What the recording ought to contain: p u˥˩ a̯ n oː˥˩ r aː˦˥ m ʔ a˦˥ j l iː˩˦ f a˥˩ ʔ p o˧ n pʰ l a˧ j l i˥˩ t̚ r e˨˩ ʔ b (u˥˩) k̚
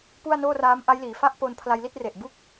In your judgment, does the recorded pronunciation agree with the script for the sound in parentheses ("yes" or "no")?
yes